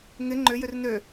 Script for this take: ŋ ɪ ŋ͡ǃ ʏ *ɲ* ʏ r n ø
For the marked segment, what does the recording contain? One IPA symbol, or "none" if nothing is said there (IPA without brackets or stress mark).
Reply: j